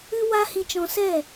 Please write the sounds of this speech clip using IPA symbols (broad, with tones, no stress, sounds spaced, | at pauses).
ɨ˦ w a˦ h ĩ˧ t͡ʃ ɔ̃˧ s ɛ˦˨